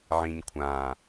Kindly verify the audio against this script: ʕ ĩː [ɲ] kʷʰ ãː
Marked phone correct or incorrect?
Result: correct